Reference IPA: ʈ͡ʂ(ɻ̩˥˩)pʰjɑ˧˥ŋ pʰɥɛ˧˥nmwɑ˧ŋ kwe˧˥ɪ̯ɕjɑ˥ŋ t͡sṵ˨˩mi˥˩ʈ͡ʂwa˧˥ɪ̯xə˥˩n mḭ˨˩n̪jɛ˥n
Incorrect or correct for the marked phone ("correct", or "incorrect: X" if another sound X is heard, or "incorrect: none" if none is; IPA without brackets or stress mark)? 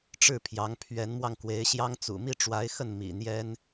correct